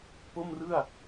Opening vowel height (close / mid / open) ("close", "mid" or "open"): mid